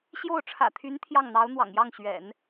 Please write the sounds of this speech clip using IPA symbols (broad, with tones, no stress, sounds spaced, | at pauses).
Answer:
ɕ j o˥˩ ʊ̯ ʈ͡ʂʰ ä̰˨˩ t̪ʰ y˧˥ n t̪ʰ j ɑ˥˩ ŋ n̪ ɑ˧˥ ʊ̯ n̪ w ɑ̰˨˩ ŋ j ɑ˥˩ ŋ ɕ ɥ ɛ̰˨˩˦ n